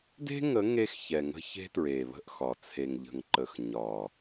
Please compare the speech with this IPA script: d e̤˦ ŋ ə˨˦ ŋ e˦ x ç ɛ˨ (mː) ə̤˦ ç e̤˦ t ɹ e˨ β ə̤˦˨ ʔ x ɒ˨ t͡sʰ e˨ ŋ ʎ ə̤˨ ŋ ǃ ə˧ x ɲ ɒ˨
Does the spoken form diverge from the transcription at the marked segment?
yes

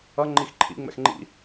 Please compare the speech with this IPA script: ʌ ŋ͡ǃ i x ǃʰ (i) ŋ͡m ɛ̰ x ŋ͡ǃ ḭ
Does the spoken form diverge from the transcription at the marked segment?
yes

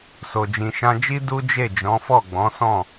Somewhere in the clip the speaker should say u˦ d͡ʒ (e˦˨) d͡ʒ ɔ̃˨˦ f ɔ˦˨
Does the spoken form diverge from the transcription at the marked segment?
no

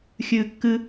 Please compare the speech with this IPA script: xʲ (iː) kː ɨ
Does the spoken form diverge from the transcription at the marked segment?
yes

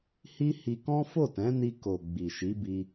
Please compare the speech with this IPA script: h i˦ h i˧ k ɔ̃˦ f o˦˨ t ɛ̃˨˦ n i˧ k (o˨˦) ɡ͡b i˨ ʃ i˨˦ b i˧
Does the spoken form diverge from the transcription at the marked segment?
yes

